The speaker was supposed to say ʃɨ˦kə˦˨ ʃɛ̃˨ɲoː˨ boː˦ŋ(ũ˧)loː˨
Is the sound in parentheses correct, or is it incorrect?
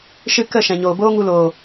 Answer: incorrect